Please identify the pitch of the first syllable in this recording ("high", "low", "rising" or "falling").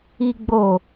low